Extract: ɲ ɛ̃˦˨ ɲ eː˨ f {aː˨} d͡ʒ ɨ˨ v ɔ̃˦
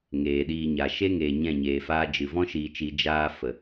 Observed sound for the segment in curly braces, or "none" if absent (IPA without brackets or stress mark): aː˦